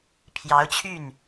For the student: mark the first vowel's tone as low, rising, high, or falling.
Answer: rising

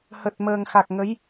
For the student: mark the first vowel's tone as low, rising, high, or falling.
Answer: low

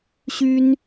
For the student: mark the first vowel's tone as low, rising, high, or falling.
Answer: high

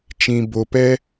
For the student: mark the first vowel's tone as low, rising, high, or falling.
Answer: low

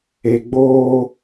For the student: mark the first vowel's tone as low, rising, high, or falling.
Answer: low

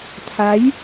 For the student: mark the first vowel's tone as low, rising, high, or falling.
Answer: rising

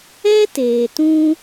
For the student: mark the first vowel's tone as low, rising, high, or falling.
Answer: high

